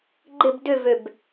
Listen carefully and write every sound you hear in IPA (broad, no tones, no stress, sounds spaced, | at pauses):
ɡ͡ǃ ɪ b d ʏ v ø b